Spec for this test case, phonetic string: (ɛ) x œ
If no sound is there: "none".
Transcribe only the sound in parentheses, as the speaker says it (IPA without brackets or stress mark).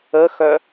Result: ə